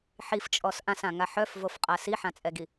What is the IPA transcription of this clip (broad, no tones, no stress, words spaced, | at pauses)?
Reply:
ħift͡ʃʼɔs ʔãsãŋa ħœfvofqʼa siħãt͡sʼɛɡi